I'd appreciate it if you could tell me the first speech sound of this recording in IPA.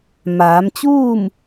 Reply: m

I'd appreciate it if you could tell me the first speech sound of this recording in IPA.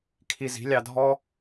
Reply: kʰ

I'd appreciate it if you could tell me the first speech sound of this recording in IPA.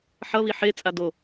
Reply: ħ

